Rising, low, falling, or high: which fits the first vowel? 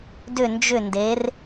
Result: falling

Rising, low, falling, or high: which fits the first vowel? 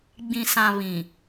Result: low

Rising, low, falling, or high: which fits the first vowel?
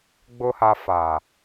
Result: low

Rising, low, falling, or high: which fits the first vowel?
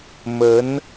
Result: rising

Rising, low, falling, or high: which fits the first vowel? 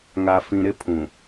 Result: low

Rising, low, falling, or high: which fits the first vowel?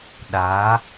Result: rising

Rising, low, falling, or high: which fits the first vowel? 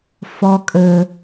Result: high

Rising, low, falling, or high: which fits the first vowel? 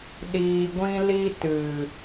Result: low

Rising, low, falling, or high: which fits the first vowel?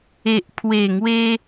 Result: low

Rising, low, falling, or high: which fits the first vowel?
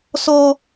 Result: high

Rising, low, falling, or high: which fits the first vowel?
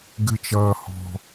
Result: high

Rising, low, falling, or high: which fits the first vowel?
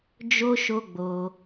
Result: high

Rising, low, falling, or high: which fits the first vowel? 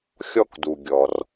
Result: high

